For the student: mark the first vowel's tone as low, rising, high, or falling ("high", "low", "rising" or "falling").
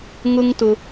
high